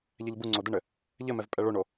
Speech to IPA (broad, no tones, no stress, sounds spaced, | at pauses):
ʎ ɛ ʎ b u ŋ͡ǀ o d ɘ ɳ ɘ | ʎ ɘ m ɛ v pʼ ɛ ɭ o ɳ o